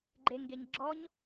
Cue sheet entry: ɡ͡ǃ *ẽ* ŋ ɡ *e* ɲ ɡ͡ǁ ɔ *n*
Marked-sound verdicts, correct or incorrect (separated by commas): incorrect, correct, incorrect